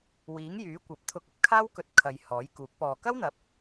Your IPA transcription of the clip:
w iː˨˥ ŋ j yː˨˥ kʷ ɐ˨˥ p̚ t̪ʰ ʊ˧ k̚ ɐ˥ p̚ kʰ aː˥ w k ɵ˧ t̚ kʰ ɐ˨˧ j h ɔː˨˥ j k uː˨˥ k̚ p ɔː˨ k ɐ˥ w n̪ ɐ˨˥ p̚

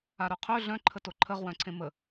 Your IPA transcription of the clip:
a ɾ œ qʰ ø ɮ œ̃ ǃʰ ə t o ǃʰ ə ʁ w œ̃ ǀʰ ẽ m ə

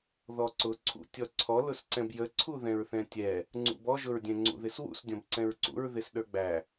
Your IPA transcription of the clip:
ð ɔ ǀ ʊ ǀʰ ṵ tʲ ɔ ǀʰ ɔ l ʊ s ǀ ɛ̃ b j ə ǀʰ u ð ɛ̃ ɹ θ ɛ̃ tʲ ɛ | ŋ͡ǀ ṵ b ɔ ʒ ʊ ɹ dʲ ɛ̃ ŋ͡ǀ ṵ ð ɪ s w ṵ s dʲ ɔ̃ b ǀ ɛ̃ ɹ ǀ ṵ ɹ ð ɪ s ɗ ə˞ ɡ͡b æ

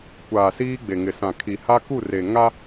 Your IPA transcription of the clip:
kʷ aː˨ s iː˦ ɡ͡b e˨ ŋ ɪ˨ s ã˨ kʰ i˨ h a˦ k u˦˨ r e˨ ŋ a˦

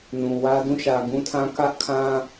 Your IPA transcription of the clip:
n ũ˨ w ä˦ d ũ˦˨ ʃ ä˨ ɡ ũ˦ tʰ ã˦ k ä˦ ʔ kʰ ã˦

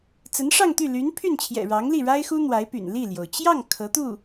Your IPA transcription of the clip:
t͡s ə˧˥ n ʂ ɑ˥˧ ŋ t̪ y˥˩ l y˧˥ n pʰ y˥˩ n t͡ɕʰ j ɛ̰˨˩ ɻ ɑ˧˥ ŋ l i˥˩ ɻ a˥ ɪ̯ x u˥ n̪ w a˧˥ ɪ̯ p y̰˨˩ n l i˥˩ l j o˩ ʊ̯ t͡ɕ j ɑ˥˩ ŋ kʰ ɤ˧˥ t̪ u˥˩

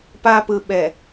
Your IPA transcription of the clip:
p a˦ p ɯ˨ ɓ ɛ˨

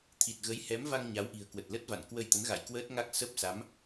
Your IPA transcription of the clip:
t̪ʰ i˨˩ t̚ ɣ ə˨˦ j h ɛ˨˦ m v a˧ ŋ ɲ a˨˦ w ʔ i̤˨˩ ə̯ k w ə˨˩ t̚ l ə˦˥ t̚ v a̰˧˨ n k w ə˧ j t̪ ə˨˦ n ɣ a̰˧˨ j k w əː˦˥ t̚ ŋ a˦˥ k̚ s ə˦˥ p̚ s a˨˦ m

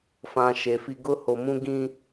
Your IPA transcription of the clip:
f ã˨ ʃ e˨ f i˦ ɡ ʊ˦ h o˨ m ũ˦ ɡ ĩ˦

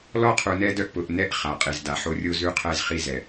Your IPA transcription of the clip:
l ɔ˦ qʰ u˨ n ɛ˦ d œ˦ ʔ p ʊ˨ ʔ n ɛ˦ ʔ χ a˨ qʼ i˨ z d a˨ ħ o˦ rʲ o˦ z ʉ˦ qʰ ɛ˦˨ z χ i˦ z ɛ˨

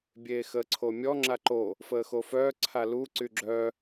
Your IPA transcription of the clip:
bʲ eː x əː ǀʰ o mʲ ɔ ŋ͡ǁ a ǃ o | f əː x o f œː ǀʰ a l u ǀ y ɡ͡ǁ œ

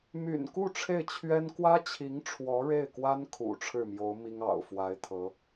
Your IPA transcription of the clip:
m y̰˨˩ n k u˥˧ ʈ͡ʂʰ e˥˩ ɪ̯ t͡ɕʰ ɥ ɛ˥ n k w ä˥ t͡ɕʰ i˧˥ ŋ ʈ͡ʂʰ w ɔ˧˥ ɻ e˥˩ ɪ̯ k w a˥ n kʰ ṵ˨˩ ʈ͡ʂʰ ɻ̩˥˩ m j o˧˥ ʊ̯ m i˥ ŋ ɑ̰˨˩ ʊ̯ f w a˧˥ ɪ̯ t̪ʰ ɤ˧˥

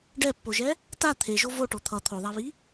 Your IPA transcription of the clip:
ɖ ɛ pː o ʒ ɛ | t a t̪ʰ e ʒ o v o ʈ o t̪ʰ ʌ t̪ʰ o ðˤ a β i

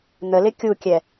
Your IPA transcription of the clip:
n̪ ə l ɪ kʲ u kʲ ɛ

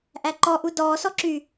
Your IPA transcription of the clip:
ʔ æ ǃ ɔ ʔ u d ɔː s ɔ ǁ y

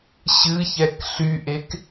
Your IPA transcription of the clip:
ɕ ɨ ç ɛ k ɬ y ʔ e k

